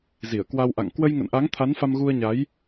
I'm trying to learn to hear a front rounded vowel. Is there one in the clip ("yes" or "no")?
no